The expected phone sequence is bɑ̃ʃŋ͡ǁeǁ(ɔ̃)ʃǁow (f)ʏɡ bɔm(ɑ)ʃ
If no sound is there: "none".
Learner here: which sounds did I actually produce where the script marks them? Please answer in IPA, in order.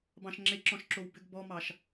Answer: ɔ̃, b, ɑ

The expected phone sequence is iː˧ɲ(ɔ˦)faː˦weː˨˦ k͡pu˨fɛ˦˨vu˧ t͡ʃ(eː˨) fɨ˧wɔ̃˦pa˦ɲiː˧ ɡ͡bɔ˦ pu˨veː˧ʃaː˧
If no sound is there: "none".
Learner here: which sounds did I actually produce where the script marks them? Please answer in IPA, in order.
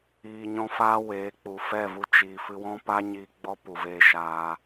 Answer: ɔ̃˦, iː˨

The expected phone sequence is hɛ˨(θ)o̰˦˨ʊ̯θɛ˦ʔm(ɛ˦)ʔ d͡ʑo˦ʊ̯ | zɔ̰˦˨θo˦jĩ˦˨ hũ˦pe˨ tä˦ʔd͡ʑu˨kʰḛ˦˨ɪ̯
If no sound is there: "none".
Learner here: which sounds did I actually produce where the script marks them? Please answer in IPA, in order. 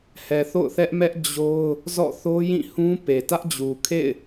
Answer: θ, ɛ˦

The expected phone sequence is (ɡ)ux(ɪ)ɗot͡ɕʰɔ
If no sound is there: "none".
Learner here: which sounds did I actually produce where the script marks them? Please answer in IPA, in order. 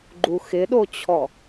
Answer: ɡ͡ǃ, ɪ

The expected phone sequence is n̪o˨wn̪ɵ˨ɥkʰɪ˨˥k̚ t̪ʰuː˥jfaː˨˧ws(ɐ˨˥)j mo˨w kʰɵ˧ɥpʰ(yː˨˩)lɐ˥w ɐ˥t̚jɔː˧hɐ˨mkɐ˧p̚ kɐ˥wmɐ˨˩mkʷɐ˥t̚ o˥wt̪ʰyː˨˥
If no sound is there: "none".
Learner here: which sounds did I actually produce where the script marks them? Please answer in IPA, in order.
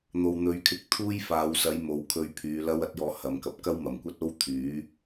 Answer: ɐ˨˥, yː˨˧

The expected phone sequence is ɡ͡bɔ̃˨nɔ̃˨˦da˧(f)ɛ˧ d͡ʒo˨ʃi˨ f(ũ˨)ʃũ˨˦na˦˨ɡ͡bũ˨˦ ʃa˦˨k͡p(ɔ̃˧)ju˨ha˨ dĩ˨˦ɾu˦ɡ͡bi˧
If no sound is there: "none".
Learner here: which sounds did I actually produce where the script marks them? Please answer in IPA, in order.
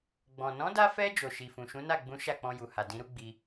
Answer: f, ũ˨, ɔ̃˧

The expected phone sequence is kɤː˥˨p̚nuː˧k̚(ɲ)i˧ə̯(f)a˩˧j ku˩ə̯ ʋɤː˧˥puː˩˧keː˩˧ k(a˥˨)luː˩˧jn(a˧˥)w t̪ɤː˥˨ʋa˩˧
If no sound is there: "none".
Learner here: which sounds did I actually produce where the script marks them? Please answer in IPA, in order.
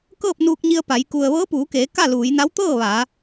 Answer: ɲ, p, a˥˨, a˧˥

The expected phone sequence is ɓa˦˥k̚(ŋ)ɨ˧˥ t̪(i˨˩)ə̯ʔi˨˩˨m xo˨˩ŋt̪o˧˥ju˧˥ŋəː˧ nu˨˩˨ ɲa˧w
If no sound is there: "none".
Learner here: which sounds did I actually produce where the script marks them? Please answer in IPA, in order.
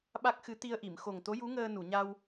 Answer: x, i˧

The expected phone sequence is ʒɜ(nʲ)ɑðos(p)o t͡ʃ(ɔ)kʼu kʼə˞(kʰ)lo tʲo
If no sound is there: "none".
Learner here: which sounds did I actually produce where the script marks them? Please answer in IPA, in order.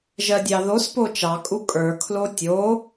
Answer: dʲ, p, ɑ, kʰ

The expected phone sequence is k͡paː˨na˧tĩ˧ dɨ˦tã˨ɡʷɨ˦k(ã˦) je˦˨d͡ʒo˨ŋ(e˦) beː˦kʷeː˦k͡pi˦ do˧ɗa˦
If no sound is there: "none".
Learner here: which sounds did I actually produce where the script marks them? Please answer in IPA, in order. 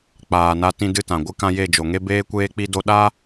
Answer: ã˦, e˦

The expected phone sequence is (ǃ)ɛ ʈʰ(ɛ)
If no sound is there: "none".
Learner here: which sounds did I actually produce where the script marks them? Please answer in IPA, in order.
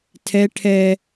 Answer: tʰ, ɛ

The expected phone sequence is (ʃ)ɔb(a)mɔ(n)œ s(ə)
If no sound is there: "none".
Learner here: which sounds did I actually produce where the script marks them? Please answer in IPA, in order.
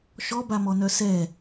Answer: ʃ, a, n, ɛ

